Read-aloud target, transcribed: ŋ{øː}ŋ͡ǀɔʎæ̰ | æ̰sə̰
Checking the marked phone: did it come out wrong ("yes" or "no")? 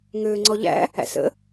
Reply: no